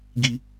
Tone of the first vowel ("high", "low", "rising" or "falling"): low